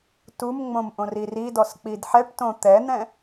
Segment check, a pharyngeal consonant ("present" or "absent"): present